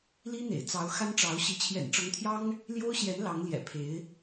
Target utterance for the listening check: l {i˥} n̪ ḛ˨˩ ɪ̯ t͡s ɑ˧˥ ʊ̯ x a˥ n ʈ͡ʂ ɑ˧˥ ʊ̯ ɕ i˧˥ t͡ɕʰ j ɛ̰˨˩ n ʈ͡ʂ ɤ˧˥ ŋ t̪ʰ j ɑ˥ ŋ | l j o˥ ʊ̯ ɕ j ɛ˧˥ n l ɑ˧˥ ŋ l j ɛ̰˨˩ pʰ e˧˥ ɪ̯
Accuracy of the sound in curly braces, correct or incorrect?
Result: correct